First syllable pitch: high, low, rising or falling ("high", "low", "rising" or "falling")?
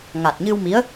low